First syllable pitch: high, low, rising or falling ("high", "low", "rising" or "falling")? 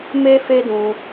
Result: high